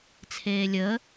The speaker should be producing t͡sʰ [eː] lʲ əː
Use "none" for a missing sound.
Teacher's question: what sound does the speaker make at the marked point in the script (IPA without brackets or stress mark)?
eː